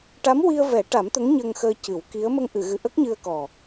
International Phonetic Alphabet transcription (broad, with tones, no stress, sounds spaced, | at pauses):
ʈ a˧˥ m w i˧ ə̯ v ɛ˨˩˦ ʈ a˨˩˦ m t̪ ə˧˥ ŋ ɲ ə˧ ŋ x əː˧ c ɨ˨˩˦ w k i˧˥ ə̯ m ə˧ ŋ ʔ ɨ˨˩˨ ɣ ɨ˨˩ ʔ ə˦˥ k̚ ɲ ɨ˧ ə̯ k ɔ˨˩